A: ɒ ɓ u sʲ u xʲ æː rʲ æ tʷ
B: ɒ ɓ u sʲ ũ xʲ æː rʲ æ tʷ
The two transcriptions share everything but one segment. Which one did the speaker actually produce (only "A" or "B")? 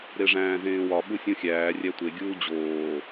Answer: B